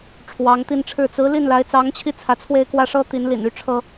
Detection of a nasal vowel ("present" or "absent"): absent